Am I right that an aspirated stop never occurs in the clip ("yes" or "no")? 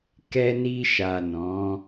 yes